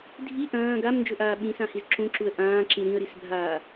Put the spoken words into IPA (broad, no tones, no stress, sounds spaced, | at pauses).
dʱ i ʔ ɐ̃ː ɡ a m n d͡ʒ ɵ ʔ aː ɓ ĩ s ã h i z ǁ ũ ǁ u ə̯ ʔ ãː ǁ ĩ ɾ ĩ ə̯ ɾ i s bʱ aː